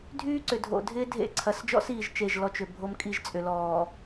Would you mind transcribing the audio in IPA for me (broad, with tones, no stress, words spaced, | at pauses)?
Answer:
dʱyː˦ǀʏ˨dʱo̰˨dʱɪː˦ dʱḛ˦ ǀʰɐ˨sd͡ʒɔ̰˦siː˨ʒ t͡ʃe˦˨ʒ lɔ˦t͡ʃʏ˨bʱo˦m kʼi˦ʒt͡sʼʏ˨lɔː˨